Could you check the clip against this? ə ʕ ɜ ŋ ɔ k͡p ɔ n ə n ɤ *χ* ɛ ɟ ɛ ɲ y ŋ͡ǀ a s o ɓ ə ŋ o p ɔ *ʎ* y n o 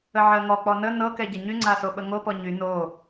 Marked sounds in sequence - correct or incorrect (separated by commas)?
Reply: incorrect, incorrect